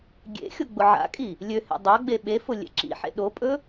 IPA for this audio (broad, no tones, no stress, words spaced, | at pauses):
ɡʲḛxʲʊ ɡ͡bʊʕa̰kʼi | lʲøhḛ dˤaɡ͡be ɓefʊ lʲḛǁḭħḛ ɗopʼɵ